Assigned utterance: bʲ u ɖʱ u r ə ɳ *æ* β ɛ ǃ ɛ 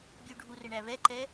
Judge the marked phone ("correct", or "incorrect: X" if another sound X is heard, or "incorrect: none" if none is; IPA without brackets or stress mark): correct